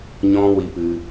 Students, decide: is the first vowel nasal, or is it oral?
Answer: nasal